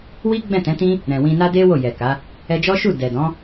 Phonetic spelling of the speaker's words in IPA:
wi˦ ɡ͡bɛ̃˦˨tɛ̃˨˦tĩ˦ | ɾɛ̃˨ wĩ˧na˦de˦ wo˦˨jɛ˨ka˨˦ | ɛ˧d͡ʒɔ˦ʃu˦˨ dɛ˨dɔ̃˨˦

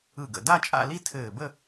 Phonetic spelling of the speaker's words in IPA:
ɯ˧˩ɡə̰˧˩ da˥˧t͡ʃʼa̰˥˧li˥˧ tʰɘː˧˩bə˥˧

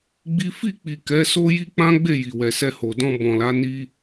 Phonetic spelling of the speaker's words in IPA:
ɡ͡bi˦ fi˦˨k͡pi˨ kɛ˨˦so˦ji˦ k͡pã˦ɡ͡be˦˨ ji˨wɛ˨sɛ˧ho˨ dɔ̃˧bɔ̃˨la˨˦ ni˦

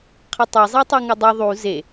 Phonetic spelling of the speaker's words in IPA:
qʰʌtˤe zˤɛtˤuŋadˤɯ ðˤu ze

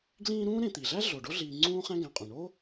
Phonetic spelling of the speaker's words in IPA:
ɡlĩː˦ɾũː˥ ɾẽ˨t̪i˩ɮæ˥ ɮo˩ɖo˥ɮiː˨ ŋ͡ǀũː˥χæ̃˥ɡæ̃˨qʼũ˩ ɳo˥

